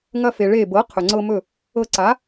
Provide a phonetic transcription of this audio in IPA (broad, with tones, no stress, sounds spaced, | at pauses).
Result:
ŋ ɐ˧ f e˩ ɭ e˧˩ b ɤ˩˥ qʰ ɵ˩ ŋ͡ǀ ɤ˧ m ɵ˧˩ | ɤ˧ ǀ a˩˥